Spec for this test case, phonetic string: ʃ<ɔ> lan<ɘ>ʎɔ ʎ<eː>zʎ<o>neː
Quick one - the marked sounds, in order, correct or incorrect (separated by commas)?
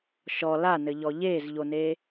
correct, correct, correct, correct